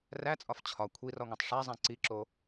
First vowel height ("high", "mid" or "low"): low